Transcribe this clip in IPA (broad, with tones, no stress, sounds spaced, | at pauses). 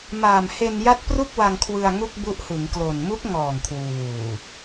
m aː˨˩ m h e˧ n j a˦˥ t̚ p r u˥˩ k̚ w a˧ ŋ kʰ w ɯ˧ a̯ ŋ u˥˩ k̚ b u˦˥ ʔ h ɯ˩˦ ŋ k l o˨˩ n m u˦˥ k̚ ŋ ɔː˨˩ ŋ kʰ w uː˨˩